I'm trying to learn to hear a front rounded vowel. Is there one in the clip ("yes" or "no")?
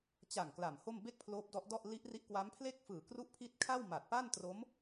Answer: no